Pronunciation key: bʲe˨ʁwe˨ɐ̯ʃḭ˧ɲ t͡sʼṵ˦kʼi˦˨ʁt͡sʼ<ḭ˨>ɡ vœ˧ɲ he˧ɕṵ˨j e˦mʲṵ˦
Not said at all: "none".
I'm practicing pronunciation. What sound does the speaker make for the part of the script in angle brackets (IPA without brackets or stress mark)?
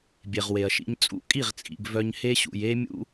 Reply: ḭ˨